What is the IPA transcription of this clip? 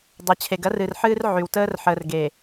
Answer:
dˤ ɤ˨ t͡ɕʰ e˨ ɡ ɐ˦ r ɨ˨ r ħ ɨː˦ r ʕ y˨ w t əː˦ r ħ əː˨ r ɡ eː˨

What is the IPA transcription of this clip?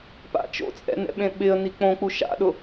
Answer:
p a̰ t͡ʃ o̰ t͡sʼ ɛ̰ n ɛ̰ ɓ ẽ ɓ ɪ ə̯ n i k͡p õ k͡p u ʃ a̰ ɗ ʊ

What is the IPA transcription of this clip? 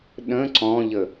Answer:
ɗ ə̃ ǀ ɔ̃ ʎ ə

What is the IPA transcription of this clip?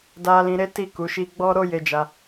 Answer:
d a˧ l ĩ˧ ɾ e˦ t i˦˨ k u˨˦ ʃ i˧ ɡ͡b ɔ˦ ɾ o˦ j e˧ d͡ʒ a˧

